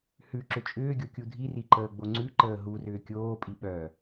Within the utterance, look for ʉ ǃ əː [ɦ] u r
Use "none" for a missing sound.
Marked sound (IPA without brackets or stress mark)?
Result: ɦ